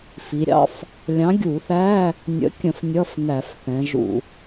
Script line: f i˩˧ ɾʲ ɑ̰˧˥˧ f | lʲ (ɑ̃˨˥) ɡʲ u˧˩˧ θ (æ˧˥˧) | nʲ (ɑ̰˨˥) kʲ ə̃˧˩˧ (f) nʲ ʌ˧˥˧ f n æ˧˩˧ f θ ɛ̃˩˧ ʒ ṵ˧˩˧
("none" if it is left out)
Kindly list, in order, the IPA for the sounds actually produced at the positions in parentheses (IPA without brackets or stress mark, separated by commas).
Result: ɑ̃˨˥, æ˧˥˧, ə̰˨˥, f